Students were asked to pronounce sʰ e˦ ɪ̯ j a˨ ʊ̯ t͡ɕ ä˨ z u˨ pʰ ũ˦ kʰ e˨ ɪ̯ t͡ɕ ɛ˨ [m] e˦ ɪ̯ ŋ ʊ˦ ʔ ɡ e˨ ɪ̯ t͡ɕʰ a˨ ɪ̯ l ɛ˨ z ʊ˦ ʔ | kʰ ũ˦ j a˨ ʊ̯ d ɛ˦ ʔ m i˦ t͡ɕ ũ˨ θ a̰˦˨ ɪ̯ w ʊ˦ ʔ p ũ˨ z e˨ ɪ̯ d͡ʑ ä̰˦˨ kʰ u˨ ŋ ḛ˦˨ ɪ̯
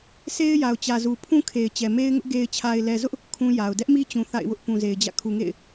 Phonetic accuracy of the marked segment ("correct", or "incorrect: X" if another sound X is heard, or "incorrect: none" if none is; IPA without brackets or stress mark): correct